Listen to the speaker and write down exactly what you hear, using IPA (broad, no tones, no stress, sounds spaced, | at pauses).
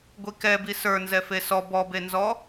ɡʷ i k ɛ b i s ə˞ n z ɛ f e s ɔ b ɔ b e n z ɔ